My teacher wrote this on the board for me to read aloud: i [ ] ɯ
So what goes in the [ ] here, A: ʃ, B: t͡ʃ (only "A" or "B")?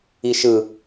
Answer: A